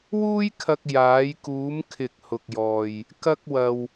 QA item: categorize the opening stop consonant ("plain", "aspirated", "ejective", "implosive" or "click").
aspirated